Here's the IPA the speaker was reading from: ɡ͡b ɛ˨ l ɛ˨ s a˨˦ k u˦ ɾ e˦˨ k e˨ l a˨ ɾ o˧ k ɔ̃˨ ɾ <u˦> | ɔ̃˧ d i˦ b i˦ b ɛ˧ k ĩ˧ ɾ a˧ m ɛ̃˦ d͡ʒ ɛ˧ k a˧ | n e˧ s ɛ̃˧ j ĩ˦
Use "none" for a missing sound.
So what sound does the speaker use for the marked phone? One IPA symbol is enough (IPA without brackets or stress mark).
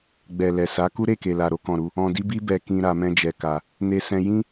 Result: u˧